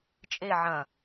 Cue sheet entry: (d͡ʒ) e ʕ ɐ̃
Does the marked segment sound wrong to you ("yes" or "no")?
yes